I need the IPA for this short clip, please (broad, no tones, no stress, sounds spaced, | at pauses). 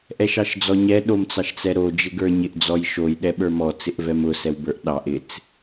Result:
ʔ ɛ ʃ ɑ ʃ d͡z ɔ ɲ ɛ ɗ o m t͡s ɑ ʃ t͡s ɛ ɾ o d͡ʒ ɪ ɡ ə˞ ɲ ɪ ʔ d͡z ɔ j ʃ o j ɗ ɛ ɓ ə˞ m ɔ t͡s ɪ ʔ v ɛ m ʊ s ɛ w b ə˞ ʔ ɗ ɑ ʔ ɪ t͡s